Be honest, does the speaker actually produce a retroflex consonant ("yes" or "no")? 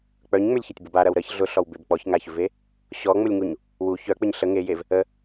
no